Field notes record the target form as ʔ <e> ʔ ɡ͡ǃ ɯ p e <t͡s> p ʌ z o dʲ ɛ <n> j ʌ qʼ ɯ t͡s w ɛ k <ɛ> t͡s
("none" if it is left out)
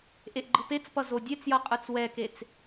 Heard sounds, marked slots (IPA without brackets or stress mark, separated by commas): e, t͡s, t͡s, e